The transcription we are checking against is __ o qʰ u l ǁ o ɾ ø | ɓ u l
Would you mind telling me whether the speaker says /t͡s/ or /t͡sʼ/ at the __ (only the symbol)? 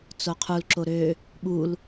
t͡s